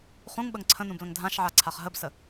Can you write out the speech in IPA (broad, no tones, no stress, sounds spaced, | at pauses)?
χ ũ ŋ ɓ ə ŋ ǀʰ ə̃ n ũ b l ə̃ ŋ dʱ ã ʃ ʕ a ǀʰ a χ ɦ ə b s ə